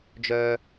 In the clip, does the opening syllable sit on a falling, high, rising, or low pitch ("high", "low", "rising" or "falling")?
low